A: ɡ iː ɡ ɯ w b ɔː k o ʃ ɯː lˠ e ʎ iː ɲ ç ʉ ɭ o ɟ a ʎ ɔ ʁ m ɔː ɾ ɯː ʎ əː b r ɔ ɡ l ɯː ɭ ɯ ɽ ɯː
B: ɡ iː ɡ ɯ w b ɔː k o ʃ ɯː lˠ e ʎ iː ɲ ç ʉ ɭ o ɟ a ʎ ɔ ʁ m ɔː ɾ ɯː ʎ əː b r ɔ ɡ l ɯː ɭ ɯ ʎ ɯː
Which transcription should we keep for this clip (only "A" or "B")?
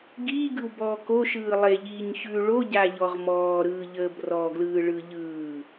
B